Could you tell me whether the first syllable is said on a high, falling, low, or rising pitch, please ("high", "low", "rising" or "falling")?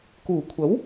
low